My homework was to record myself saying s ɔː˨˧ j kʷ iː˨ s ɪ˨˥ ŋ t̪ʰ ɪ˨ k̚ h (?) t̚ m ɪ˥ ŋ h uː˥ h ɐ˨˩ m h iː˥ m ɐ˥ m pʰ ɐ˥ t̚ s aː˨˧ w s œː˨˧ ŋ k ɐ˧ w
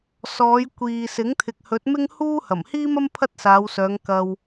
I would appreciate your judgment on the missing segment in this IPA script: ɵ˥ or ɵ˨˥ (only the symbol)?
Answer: ɵ˨˥